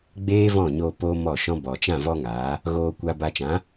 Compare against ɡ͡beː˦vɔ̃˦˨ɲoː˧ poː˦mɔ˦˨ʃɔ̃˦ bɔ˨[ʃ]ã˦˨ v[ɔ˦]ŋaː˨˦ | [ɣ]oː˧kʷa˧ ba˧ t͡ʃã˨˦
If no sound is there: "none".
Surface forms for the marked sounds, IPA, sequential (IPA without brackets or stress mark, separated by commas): t͡ʃ, ɔ˦, ɣ